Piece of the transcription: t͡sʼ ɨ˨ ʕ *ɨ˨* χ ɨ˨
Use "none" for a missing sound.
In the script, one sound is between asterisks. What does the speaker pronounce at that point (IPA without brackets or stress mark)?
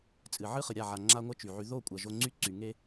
ɨ˦